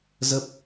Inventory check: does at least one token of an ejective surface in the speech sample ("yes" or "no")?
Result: no